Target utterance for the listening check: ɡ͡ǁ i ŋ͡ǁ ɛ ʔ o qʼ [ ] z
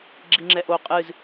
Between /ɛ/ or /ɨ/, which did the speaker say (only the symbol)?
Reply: ɨ